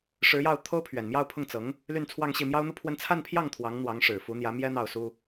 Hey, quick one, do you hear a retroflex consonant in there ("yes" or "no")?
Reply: yes